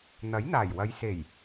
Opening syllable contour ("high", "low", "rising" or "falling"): rising